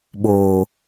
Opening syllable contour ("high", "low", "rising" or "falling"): low